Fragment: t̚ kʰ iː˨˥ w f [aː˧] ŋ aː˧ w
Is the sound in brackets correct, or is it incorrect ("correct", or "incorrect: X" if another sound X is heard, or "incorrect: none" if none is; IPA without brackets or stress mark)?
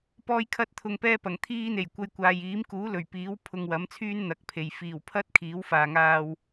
incorrect: aː˨